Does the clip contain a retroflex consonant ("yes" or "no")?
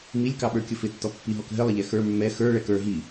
yes